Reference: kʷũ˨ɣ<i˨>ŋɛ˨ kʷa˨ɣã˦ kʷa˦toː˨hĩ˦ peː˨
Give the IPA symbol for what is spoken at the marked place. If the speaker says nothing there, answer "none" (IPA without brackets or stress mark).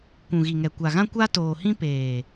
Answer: i˨